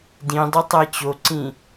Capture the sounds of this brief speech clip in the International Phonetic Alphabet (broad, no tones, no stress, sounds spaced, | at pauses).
d ĩ dˤ u tˤ æ t͡ɕ o ǀ ĩ